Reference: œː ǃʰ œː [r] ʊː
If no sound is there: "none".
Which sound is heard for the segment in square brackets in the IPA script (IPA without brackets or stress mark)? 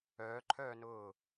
n